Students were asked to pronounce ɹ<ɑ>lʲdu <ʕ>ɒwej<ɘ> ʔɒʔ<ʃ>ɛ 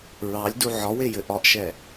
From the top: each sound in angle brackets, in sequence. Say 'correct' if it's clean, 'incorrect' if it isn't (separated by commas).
correct, correct, correct, correct